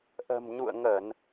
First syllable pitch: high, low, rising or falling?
low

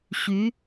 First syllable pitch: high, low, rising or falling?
rising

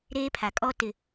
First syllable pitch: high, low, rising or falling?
high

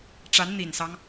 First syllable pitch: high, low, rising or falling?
rising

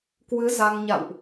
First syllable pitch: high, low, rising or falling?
rising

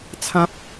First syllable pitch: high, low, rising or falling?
high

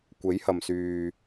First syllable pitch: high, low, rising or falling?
rising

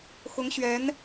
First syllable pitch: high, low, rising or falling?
rising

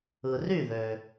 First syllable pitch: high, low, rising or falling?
low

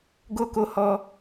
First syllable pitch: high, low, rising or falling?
high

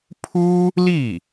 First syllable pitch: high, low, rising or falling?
high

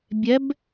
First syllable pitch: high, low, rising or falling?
rising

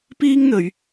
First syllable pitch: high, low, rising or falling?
high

